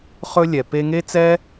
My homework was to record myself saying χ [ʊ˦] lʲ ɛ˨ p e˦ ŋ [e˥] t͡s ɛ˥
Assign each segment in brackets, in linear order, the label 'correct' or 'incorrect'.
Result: incorrect: ɵ˦, correct

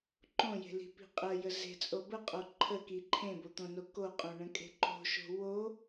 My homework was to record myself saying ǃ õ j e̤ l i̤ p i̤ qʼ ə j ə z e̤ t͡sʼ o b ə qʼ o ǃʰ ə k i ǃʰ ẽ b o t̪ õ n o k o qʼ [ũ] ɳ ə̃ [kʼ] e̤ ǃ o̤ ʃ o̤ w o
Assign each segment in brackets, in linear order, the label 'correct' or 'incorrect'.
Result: incorrect: õ, correct

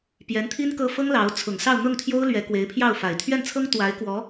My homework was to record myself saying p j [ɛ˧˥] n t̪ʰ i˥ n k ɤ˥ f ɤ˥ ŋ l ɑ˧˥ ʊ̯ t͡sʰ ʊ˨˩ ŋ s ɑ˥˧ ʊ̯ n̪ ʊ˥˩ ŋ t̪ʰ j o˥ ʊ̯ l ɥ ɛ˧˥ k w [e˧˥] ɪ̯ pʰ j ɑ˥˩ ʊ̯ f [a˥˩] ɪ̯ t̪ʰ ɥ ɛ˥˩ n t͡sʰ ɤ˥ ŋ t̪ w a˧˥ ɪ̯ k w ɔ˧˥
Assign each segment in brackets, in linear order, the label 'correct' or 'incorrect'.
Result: correct, correct, incorrect: a˨˩

